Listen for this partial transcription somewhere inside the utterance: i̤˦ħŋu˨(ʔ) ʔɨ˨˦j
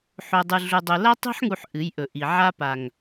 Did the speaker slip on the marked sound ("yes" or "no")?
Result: yes